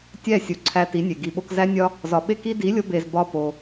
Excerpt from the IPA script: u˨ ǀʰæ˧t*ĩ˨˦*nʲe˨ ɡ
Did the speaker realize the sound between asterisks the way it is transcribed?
no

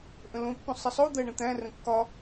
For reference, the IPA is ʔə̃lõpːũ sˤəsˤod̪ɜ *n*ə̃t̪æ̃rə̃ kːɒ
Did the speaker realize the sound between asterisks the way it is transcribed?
no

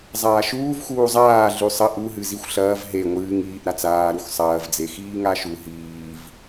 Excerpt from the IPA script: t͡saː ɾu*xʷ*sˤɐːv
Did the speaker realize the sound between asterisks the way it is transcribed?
no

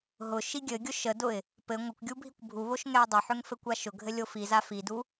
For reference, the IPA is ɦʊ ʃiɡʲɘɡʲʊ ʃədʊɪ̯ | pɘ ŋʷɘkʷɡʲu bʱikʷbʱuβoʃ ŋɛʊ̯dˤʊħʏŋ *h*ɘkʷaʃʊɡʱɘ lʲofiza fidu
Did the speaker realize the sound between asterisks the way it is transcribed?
no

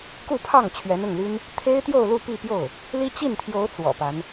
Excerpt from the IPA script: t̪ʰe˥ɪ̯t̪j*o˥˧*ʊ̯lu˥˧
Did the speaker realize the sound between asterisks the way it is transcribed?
yes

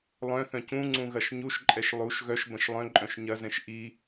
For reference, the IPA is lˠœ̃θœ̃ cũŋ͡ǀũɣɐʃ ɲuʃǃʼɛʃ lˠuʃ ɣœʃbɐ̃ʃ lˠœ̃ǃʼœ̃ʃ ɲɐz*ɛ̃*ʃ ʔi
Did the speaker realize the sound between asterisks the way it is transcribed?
yes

